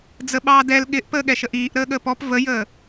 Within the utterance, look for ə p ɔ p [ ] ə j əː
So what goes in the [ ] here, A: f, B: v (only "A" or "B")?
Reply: B